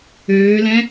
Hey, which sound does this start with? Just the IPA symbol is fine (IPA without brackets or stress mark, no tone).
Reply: øː